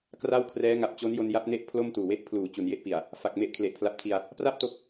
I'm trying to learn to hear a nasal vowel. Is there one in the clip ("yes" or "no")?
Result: no